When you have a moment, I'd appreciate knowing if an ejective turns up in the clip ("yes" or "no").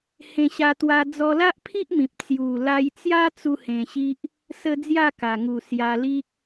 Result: no